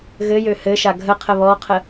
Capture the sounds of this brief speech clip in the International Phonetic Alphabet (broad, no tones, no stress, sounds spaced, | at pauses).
ɣ ɘ j ø h ɘ ʃ a ɡʱ ə qʰ ə β ɔ qʰ ə